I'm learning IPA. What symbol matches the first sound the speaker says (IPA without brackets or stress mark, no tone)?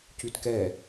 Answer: c